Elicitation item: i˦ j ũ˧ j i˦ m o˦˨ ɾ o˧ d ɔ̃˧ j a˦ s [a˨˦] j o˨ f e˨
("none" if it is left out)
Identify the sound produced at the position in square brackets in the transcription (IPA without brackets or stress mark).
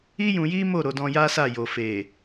a˦˨